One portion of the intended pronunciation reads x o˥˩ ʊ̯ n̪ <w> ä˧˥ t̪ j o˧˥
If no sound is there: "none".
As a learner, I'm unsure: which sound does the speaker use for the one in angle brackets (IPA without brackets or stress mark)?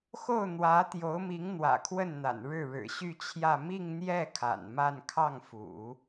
w